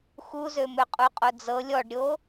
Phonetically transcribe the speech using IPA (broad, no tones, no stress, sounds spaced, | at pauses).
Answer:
x u z ø m ø qʼ u qʼ o d͡z ɤ lʲ ɔ ɖ ɾʲ o